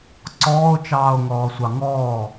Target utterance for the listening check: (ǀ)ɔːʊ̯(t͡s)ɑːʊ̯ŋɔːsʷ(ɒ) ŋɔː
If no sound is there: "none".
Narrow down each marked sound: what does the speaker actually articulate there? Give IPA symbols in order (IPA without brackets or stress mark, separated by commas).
ǀ, t͡ʃ, ɑ